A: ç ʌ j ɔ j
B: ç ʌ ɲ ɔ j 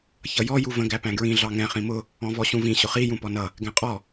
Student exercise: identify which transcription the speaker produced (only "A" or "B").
A